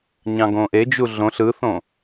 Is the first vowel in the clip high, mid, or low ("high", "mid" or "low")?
low